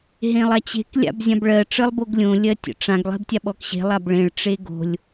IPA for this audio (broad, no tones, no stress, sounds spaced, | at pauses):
ɦ ẽ lˠ a t͡ɕ e̤ k lʲ a̰ b zʲ ã b ɭ ɜ ʈ͡ʂ ə lˠ b o ɡ lʲ õ lʲ ɜ tʲ ə̰ ʈ͡ʂ ã ɡ lˠ e̤ b tʲ a ɓ ɔ k ɕ e̤ lˠ a b ɭ ẽ ɭ ʈ͡ʂ e ɡ o̤ lʲ